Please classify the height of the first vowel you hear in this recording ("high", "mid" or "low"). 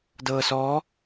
mid